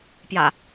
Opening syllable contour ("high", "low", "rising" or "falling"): low